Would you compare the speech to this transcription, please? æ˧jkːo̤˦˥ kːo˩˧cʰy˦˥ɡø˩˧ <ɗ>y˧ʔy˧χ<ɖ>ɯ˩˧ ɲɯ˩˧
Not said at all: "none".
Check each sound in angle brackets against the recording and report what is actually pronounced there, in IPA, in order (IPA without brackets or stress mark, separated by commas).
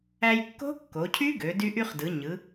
d, d